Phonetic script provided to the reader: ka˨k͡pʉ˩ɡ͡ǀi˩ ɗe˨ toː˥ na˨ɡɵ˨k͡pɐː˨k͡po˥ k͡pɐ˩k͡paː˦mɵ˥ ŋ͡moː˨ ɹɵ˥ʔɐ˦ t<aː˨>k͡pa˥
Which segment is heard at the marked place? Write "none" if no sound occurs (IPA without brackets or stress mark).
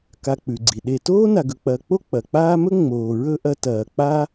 ɐː˨